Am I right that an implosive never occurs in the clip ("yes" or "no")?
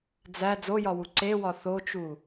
yes